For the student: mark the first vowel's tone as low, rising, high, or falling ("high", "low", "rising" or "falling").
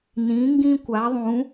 rising